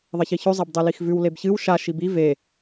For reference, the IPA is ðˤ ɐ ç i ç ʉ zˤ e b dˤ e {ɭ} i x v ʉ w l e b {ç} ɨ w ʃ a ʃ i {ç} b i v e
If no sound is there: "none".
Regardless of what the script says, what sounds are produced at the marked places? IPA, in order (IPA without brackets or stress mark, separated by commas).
l, ç, none